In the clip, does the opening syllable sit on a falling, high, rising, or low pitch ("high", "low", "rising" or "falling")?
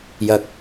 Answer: high